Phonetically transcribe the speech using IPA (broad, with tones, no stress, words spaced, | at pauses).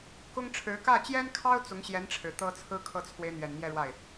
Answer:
kʊ˥ŋʈ͡ʂʰɻ̩˧˥ kä˥˩t͡ɕjɛ˥nkʰɑ˥ʊ̯ t͡sʊ˧˥ŋɕjɛ˧˥n ʈ͡ʂʰɻ̩˨˩t̪ɤ˥t͡sʰɹ̩˥ kʰɤ˥˩t͡sʰwe˧˥ɪ̯n̪ɥɛ˨˩n mjɛ˥˧ɻwa˥˩ɪ̯